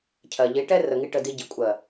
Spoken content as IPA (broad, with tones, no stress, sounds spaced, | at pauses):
cʰ ɜ˨ ʎ i˨˦ ʈ ɛ˦ r ə˨ ŋ i˧ ʈ ə˧ d i˧ ɟ i˨ kʷʼ ɜ˨